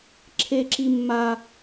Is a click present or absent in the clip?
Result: present